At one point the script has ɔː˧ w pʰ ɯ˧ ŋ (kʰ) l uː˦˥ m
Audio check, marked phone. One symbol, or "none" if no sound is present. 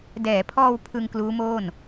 k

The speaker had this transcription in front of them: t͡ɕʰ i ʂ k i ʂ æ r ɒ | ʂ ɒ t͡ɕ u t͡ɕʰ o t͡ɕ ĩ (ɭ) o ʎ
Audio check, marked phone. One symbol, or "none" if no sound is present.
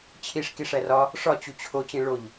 ɭ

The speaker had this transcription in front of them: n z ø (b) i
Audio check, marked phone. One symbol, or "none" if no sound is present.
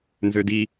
d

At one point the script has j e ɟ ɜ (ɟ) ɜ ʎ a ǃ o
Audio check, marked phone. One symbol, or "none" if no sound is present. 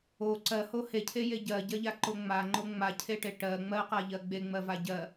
ɟ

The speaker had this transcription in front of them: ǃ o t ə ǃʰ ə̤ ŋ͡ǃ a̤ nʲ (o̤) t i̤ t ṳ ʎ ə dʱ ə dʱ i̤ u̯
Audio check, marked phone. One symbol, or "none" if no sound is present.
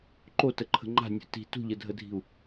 o̤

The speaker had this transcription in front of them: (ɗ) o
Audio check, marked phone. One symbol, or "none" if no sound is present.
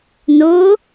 n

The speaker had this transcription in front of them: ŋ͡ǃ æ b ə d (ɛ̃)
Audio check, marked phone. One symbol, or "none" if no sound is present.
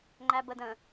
ə̃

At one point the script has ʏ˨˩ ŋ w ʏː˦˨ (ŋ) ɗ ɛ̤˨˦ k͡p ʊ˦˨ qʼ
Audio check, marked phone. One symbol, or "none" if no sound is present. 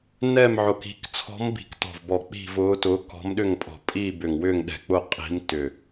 ŋ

